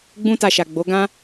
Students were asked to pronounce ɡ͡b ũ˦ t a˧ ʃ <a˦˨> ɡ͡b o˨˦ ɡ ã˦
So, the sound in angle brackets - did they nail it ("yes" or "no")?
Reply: no